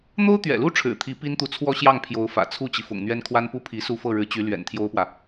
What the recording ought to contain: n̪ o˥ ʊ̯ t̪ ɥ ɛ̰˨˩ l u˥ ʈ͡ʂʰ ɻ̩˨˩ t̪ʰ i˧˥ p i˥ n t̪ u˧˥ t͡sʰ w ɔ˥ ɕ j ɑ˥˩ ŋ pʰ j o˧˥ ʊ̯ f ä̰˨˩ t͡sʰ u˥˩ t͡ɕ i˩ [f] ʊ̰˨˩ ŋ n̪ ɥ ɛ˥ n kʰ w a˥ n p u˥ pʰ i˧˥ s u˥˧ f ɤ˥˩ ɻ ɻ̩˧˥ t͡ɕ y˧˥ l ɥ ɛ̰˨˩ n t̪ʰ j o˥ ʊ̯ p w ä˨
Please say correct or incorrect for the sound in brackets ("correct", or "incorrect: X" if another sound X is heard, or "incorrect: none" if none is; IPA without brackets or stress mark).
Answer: correct